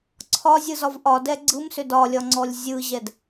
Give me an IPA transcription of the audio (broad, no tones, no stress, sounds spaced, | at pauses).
ǀʰ ɒ zʲ ɯ z ɒ v ʔ ɒ d ɛ ɡ͡ǀ ɯ m s ʏ d ɒ lʲ ɒ ŋ͡ǀ ɔ lʲ zʲ ɯ ʑ ɛ d